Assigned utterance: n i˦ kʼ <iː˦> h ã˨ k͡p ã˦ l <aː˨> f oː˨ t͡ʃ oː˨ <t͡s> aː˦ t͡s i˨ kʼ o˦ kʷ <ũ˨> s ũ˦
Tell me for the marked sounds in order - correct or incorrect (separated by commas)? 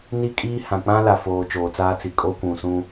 correct, incorrect, correct, correct